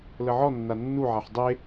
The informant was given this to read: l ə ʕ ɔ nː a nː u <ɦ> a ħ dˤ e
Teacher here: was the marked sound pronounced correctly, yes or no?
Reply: no